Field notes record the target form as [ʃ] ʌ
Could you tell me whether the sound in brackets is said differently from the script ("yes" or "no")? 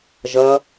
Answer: yes